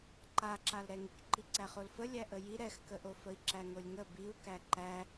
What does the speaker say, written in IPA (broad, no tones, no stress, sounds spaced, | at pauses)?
ǃ a ǁ a l ɾ ɛ ŋ i k ǃ i ǀ æ χ o l f ə lʲ æ ʔ ə j i ɾ ɛ x k ə ʔ o f ə i̯ ǁ æ ŋ o lʲ ŋ ə b i u̯ k æ ǃ æ